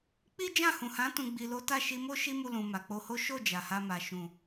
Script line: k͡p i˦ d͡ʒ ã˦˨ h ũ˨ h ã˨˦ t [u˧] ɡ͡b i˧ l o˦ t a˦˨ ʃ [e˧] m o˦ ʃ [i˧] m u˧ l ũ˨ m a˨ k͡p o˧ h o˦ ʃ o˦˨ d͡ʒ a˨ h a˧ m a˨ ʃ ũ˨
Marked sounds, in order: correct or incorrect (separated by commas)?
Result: incorrect, incorrect, incorrect